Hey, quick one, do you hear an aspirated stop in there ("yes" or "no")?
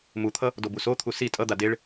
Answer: yes